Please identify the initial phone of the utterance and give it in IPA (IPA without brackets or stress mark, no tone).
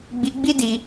ɡ͡b